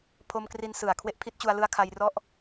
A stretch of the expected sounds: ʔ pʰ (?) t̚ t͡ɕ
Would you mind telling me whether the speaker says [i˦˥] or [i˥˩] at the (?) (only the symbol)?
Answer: i˦˥